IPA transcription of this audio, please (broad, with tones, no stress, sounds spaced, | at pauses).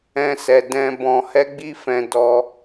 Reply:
ɛ̃˦ s ɛ˧ d ɛ̃˦ b ɔ̃˧ h ɛ˦ ɡ͡b i˦ f ɛ̃˧ d ɔ˧